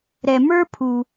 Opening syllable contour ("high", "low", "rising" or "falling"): low